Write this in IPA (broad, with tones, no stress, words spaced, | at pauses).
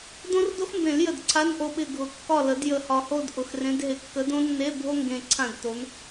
dõ˥rdo˥xmbẽ˨˩˦ljə˨˩d ǀʰa˧˥˧nʔo˦˨ɓɪ˦˨ ɡʱʊ˨˩˦ kːɒ˦˨lə˨˩˦d jə˨˩hɒ˨˩ho˦˨d ʔʊ˨˩xrẽ˨˦dɦɪ˨˩ kːə˨˦dõ˥nːe˧˥˧ bʱo˥ŋɡẽ˨˩ ǀʰã˦˨dto˨˦n